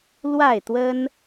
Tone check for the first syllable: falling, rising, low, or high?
falling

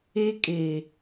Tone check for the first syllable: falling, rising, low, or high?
high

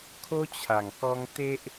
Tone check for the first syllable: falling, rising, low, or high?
high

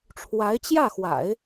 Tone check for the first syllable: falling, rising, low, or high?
rising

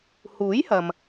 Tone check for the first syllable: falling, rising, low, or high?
rising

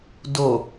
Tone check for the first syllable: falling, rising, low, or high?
low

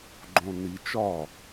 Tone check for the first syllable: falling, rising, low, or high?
low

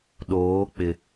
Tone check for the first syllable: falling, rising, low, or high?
rising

